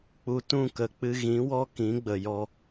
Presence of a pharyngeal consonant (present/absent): absent